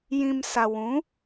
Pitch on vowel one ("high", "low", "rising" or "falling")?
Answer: low